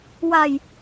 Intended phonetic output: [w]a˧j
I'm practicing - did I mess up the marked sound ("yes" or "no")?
no